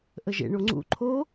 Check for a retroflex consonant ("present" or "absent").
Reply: present